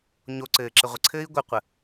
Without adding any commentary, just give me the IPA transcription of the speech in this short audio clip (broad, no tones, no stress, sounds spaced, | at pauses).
ɲ o ǀ ɘː ǁ ɘ ʁʷ ə ǀʰ ɘː i̯ ɡʷ ɘ qʷ ə